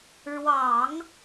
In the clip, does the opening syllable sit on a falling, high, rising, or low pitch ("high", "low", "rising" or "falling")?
low